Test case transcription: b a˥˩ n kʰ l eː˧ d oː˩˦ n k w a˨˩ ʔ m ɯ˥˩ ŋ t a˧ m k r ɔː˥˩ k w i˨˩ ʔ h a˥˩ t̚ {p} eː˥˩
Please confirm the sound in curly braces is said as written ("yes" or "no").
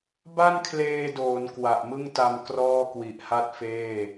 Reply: no